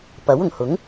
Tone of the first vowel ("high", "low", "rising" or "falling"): rising